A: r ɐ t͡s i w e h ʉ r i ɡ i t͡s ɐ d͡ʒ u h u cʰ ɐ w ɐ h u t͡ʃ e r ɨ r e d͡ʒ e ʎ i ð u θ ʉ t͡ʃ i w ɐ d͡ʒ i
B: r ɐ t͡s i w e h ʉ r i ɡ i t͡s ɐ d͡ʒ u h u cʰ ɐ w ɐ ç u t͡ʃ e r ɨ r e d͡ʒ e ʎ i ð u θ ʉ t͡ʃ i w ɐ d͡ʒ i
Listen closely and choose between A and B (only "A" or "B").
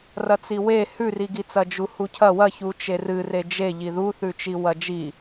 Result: B